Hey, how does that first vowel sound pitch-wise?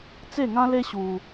falling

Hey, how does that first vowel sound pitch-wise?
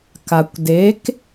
low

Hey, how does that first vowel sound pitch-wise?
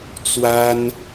high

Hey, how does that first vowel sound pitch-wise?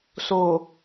low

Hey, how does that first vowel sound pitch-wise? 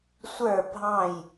falling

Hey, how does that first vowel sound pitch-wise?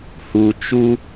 low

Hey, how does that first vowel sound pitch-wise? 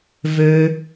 high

